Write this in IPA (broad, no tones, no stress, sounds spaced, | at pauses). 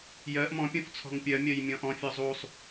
j ɜ ʔ m ɔ̃ pʲ õ f t͡sʰ ɔ̤ ŋ pʲ ɜ mʲ ɜ j mʲ ɔ̃ ʔ ɔ̃ fʲ ɔ zˤ u sˤ